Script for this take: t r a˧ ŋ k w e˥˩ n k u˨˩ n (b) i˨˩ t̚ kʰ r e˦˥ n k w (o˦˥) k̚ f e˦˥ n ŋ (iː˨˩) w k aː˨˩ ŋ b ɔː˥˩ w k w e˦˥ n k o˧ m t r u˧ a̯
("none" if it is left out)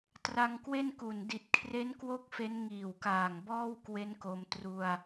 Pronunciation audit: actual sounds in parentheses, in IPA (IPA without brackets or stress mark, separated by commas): d, o˦˥, iː˨˩